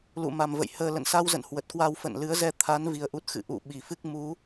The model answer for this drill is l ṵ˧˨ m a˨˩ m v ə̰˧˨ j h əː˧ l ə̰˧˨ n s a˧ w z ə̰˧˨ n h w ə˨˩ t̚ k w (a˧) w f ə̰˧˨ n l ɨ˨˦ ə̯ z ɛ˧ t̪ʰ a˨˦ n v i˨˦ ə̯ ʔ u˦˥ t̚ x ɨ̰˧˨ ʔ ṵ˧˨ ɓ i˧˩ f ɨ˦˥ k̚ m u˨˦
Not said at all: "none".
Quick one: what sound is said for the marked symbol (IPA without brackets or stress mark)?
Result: a˧